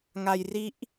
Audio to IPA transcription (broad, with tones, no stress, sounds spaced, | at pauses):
ŋ a˧ j r i˦˥ ʔ